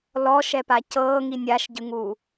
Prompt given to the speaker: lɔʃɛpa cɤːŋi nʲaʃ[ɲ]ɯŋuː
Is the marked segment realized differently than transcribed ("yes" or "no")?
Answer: yes